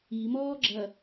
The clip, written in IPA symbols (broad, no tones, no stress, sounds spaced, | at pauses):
i m ɔː ɡ͡ǁ ɐ